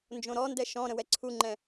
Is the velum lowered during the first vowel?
yes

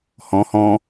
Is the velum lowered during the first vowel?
yes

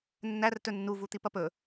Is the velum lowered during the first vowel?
no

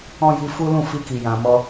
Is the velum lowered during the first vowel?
yes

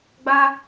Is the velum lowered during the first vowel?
no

